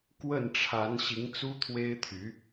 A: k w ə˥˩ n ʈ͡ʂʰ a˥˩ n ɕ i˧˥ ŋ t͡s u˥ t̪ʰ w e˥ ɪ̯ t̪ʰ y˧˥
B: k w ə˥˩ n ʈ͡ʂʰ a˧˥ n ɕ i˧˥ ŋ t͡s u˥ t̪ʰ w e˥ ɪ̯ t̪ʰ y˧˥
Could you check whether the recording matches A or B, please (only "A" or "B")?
B